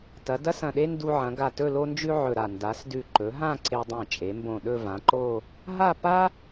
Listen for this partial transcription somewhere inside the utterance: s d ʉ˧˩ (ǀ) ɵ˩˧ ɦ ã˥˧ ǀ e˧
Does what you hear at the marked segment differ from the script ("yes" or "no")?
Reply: yes